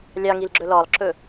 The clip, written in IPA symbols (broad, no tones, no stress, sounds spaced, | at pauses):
lʲ ɑ ŋ i l ɡ͡ǁ ɵ l ɔ lˠ ǁ ɵ